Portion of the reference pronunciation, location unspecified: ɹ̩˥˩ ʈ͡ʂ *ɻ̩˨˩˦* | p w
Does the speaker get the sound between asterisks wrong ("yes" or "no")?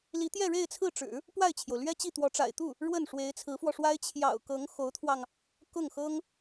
no